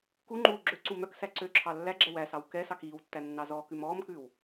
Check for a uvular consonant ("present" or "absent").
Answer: absent